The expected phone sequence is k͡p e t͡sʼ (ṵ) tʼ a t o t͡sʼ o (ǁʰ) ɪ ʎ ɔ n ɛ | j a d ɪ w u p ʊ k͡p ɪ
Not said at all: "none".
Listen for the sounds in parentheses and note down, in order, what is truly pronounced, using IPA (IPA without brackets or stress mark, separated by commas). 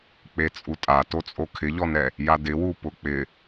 u, kʰ